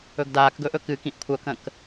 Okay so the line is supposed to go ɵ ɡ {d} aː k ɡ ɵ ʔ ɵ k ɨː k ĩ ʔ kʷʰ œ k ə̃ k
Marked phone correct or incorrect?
correct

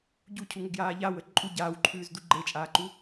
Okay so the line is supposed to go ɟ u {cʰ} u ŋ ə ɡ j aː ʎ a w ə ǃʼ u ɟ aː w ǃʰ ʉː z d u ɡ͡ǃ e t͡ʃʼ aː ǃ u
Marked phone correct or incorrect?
correct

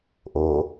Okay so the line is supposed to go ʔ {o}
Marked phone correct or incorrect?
correct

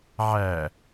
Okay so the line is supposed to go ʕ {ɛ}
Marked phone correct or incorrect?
incorrect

